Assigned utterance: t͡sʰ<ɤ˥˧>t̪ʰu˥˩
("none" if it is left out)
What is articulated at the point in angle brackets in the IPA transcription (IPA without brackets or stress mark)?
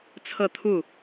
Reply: ɤ˥˧